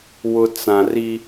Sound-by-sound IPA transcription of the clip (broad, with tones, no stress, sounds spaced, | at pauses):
w ʊ˨ t͡s ã˨ r i˦